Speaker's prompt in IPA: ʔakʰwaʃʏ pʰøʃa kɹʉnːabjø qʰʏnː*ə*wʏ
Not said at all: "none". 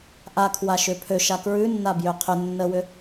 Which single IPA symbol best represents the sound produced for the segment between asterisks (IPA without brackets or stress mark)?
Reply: ə